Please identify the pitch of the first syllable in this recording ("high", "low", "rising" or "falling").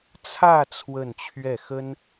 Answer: falling